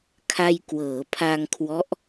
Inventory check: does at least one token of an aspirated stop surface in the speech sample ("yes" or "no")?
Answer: yes